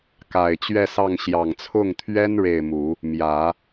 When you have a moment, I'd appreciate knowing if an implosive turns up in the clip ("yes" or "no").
no